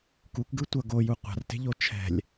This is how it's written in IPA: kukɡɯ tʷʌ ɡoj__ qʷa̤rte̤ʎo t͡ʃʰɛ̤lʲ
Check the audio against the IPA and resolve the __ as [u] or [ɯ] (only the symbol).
u